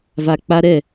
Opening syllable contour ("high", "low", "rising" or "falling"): low